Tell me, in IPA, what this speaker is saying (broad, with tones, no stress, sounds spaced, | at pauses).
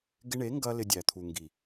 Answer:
ɡ ɪ˧ ɳ e˨˦ ŋ ɡ ɐ˧ l ɪ˧ dʲ æ˨ t̪ʰ u˨ ŋ ɡ i˨